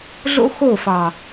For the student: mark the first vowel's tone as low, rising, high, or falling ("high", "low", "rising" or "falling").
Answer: high